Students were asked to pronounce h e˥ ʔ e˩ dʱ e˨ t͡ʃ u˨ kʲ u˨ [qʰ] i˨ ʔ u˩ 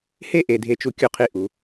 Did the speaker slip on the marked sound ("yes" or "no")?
no